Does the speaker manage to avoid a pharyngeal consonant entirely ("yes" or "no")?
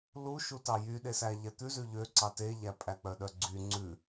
yes